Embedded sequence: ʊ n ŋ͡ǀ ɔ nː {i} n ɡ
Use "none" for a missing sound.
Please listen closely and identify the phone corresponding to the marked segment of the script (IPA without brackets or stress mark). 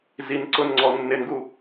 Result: ɪ